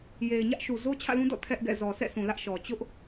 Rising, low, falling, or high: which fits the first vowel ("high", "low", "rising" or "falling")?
low